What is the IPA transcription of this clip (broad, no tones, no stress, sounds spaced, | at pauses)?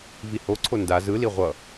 v i h o ǀʰ o n d a z ɯ l i ʁʷ ʌ